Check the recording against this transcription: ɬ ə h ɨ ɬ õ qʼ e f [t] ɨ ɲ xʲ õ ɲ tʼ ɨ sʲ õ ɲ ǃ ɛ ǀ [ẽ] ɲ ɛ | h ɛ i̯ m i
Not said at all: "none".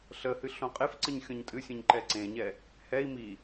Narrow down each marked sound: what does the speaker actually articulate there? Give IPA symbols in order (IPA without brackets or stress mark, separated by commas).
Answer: ǀ, ẽ